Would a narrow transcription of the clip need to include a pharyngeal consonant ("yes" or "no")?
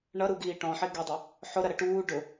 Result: yes